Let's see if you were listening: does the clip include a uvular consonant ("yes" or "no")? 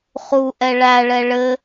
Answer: yes